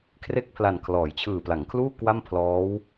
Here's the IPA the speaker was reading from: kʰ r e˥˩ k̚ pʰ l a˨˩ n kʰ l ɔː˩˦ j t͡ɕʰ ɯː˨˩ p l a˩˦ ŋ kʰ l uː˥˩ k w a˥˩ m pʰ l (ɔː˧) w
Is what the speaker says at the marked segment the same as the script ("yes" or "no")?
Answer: no